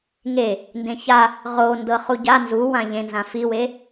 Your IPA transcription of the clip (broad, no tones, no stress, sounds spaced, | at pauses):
ŋ e | n d ẽ ç a | ʁ o n d ɤ χ u ɟ a n z u w ã ʎ ẽ n z ã f i w e